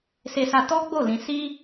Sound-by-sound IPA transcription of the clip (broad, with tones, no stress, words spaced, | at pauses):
se˧sa˧ tɔ˦ɡ͡bo˦˨ lĩ˧ si˦